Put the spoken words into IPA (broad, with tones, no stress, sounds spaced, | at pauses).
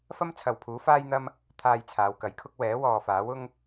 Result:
f ɐ˥ m t͡sʰ ɐ˨ w pʰ uː˨˥ f aː˥ j n̪ ɐ˥ m | t̪ʰ aː˧ j t͡sʰ aː˨˧ w k ɐ˨˥ j kʰ ʊ˥ k̚ w ɛː˨˥ w ɔː˨ f aː˨˥ w ʊ˥ ŋ